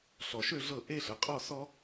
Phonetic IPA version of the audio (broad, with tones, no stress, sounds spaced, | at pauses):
ɬ ɔ˨ ʃ ø˥˧ ɮ ɤ˥˩ ʔ e˥˧ ɬ ə˨ qʼ ɔ˥˧ s ɔ˥